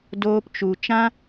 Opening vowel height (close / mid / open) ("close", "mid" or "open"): mid